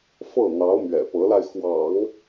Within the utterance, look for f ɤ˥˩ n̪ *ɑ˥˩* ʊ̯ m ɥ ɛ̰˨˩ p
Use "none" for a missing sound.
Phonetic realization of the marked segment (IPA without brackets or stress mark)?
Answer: ɑ˧˥